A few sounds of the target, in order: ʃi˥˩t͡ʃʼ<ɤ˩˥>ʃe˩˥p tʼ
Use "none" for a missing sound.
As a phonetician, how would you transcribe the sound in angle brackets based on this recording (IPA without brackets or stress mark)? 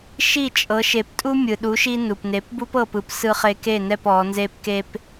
ɤ˩˥